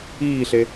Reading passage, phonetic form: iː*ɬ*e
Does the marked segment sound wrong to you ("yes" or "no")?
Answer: no